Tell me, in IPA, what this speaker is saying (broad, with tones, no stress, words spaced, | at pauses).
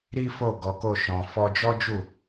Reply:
ɾi˦fo˦˨ ɡɔ˨˦ko˦˨ʃɔ̃˨ fɔ˧d͡ʒɔ˦d͡ʒu˦˨